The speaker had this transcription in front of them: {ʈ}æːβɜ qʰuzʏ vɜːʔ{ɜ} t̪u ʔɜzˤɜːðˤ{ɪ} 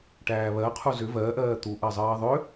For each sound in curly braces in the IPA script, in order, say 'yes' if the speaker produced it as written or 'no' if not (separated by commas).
yes, no, no